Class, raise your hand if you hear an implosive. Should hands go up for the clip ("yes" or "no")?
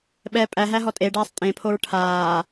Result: yes